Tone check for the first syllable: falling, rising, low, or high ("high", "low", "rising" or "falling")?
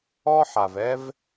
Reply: high